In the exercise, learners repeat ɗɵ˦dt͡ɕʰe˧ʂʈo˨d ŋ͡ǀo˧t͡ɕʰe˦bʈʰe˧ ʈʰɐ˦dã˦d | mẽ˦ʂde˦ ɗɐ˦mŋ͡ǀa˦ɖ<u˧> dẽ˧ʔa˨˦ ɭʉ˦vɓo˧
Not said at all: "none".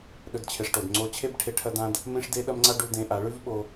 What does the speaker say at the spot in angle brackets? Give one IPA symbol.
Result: u˧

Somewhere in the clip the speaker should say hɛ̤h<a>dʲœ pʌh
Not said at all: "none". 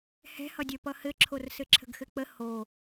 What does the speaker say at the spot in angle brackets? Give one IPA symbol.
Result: ʌ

